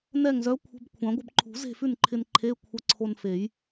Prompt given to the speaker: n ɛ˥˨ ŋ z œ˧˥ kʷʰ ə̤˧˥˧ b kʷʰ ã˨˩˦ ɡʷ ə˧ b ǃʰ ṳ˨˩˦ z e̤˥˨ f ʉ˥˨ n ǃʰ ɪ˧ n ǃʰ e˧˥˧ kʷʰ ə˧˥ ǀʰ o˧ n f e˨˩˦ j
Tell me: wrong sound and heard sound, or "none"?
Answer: none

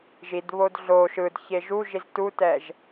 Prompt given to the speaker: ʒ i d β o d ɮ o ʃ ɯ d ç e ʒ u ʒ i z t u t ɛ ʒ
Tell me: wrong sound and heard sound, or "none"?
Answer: none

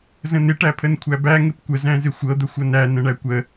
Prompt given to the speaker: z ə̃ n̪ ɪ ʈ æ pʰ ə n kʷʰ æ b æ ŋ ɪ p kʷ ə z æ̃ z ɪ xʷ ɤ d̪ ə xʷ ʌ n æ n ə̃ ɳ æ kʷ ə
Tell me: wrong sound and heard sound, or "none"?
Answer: none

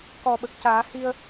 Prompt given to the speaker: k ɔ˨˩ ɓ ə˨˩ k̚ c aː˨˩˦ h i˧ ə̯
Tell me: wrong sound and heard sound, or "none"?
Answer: none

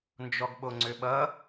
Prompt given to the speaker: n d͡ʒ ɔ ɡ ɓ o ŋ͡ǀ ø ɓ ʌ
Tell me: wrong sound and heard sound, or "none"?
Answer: none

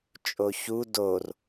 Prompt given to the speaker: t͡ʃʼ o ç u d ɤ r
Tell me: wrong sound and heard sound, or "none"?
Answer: ɤ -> o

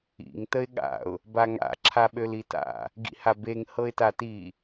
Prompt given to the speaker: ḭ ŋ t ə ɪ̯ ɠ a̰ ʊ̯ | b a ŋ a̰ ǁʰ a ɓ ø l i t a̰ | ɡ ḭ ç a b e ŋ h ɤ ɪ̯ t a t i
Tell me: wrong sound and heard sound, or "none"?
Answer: ç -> h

